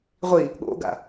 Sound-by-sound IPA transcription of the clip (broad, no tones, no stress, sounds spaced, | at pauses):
ʁʷ i | ɠ o̰ ɡ a̰